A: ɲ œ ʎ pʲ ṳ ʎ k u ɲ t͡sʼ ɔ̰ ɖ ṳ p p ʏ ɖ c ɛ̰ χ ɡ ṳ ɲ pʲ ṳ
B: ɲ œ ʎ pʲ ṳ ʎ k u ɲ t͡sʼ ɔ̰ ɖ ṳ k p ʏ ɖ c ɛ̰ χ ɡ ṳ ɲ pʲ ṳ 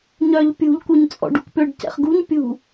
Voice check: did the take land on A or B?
B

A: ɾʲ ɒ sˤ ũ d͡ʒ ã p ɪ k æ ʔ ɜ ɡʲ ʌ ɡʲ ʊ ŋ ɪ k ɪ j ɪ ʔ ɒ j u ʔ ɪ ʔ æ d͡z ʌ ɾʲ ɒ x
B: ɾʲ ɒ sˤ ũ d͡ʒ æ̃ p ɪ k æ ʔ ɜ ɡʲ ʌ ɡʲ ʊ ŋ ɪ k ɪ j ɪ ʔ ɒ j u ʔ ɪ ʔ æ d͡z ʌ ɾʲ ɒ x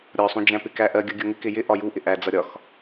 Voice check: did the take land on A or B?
B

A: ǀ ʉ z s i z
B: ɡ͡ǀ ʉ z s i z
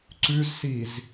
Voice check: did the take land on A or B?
A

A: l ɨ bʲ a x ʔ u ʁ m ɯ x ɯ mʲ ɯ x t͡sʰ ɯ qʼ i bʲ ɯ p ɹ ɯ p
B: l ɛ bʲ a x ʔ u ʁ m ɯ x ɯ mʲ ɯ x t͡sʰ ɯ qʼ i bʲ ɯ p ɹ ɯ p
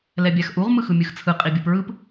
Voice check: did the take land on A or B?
B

